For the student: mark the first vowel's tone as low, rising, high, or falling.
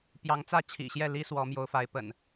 rising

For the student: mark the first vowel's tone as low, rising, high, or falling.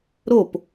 falling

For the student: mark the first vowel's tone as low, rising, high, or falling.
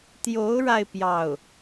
rising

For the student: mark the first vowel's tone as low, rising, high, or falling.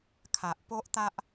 low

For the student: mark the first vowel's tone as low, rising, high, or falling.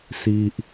low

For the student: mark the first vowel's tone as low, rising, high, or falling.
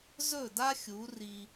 falling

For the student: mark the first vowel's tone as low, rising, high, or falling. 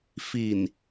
low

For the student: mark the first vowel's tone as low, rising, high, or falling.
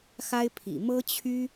high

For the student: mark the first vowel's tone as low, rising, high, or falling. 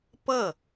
falling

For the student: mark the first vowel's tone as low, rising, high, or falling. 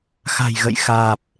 low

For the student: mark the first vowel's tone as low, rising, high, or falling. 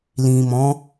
low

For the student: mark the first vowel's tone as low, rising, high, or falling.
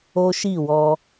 high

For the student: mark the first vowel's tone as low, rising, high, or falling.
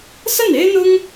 falling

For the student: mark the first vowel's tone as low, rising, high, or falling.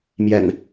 low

